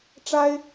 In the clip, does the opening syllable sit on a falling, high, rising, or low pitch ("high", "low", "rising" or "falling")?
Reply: high